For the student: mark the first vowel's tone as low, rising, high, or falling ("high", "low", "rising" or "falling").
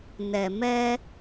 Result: low